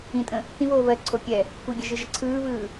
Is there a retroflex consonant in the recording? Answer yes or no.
no